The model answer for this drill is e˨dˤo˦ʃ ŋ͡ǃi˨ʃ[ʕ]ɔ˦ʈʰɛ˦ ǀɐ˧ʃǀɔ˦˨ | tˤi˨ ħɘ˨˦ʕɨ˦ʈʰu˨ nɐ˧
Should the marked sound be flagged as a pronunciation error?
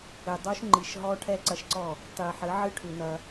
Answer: yes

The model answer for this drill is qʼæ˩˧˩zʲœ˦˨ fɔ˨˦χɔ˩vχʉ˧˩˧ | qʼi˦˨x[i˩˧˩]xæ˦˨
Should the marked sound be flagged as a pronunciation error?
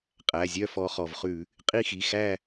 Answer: no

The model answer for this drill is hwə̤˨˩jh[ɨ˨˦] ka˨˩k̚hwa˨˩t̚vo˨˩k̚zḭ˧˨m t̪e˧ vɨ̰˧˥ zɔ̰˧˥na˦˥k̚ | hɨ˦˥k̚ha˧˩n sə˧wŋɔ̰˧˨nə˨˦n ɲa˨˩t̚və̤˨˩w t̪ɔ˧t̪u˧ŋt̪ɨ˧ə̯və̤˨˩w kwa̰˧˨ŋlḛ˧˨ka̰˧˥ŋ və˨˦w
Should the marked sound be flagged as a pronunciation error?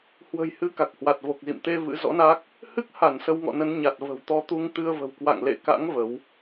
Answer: no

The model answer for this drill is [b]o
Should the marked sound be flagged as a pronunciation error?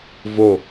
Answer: yes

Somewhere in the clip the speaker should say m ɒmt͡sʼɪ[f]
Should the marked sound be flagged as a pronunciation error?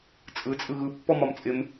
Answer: yes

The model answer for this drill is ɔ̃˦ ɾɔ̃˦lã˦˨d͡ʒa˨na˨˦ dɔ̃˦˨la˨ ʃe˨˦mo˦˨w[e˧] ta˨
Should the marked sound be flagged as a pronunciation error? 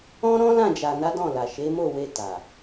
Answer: no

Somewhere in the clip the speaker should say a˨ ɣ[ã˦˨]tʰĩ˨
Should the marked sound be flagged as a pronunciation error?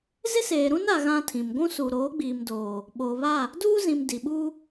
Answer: yes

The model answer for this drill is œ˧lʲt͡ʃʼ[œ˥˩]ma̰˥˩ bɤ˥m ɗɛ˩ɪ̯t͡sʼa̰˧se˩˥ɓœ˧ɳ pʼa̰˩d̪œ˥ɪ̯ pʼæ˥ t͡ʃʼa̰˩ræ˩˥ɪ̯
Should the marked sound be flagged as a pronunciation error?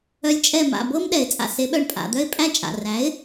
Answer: yes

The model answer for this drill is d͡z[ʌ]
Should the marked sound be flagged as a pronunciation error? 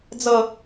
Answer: no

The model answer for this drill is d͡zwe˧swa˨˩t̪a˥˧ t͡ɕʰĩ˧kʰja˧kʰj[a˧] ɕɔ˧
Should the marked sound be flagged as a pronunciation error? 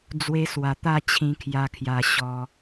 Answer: no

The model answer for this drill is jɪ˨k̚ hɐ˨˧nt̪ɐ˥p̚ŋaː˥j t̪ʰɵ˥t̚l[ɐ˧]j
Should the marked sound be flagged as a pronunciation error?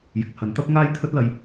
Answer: no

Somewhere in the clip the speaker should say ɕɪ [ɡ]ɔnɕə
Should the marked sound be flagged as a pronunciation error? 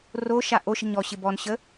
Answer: yes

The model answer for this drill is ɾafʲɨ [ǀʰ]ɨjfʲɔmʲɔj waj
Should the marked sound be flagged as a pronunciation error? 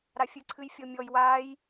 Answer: no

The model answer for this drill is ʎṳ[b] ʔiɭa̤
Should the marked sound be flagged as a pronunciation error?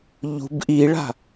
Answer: no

